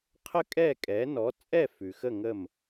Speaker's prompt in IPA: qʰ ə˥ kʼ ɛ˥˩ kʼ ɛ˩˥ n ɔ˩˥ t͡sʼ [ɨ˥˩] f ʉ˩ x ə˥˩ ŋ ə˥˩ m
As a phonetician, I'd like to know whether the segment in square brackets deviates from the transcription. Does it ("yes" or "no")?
yes